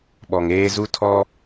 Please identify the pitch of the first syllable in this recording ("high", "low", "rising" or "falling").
low